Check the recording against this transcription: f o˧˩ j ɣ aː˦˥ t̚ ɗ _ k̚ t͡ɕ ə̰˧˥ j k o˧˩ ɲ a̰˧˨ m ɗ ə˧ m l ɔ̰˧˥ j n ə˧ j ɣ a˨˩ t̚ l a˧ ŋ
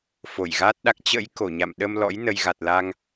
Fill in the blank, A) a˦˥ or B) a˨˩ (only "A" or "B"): A